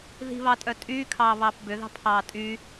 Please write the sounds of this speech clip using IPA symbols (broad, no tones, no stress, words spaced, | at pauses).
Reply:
ði̤βɑtʼœ tʼyːkʰɑːβɑːp bʏðɑ̤pʰɑː tʼy